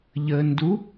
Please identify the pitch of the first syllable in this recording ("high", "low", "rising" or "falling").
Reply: low